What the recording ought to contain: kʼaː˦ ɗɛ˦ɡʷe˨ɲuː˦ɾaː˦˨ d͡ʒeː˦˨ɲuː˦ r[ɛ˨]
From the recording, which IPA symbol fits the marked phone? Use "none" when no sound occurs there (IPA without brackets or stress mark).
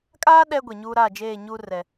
ɛ˦